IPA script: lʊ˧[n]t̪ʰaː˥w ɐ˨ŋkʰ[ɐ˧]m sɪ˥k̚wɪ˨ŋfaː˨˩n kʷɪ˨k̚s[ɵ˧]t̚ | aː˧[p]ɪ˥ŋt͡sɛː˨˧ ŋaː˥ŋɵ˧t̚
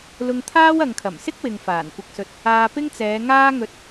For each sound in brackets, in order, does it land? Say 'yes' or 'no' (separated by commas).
no, no, no, yes